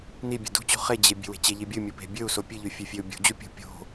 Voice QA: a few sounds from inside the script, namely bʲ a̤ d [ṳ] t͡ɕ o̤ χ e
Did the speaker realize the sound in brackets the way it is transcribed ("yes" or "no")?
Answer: yes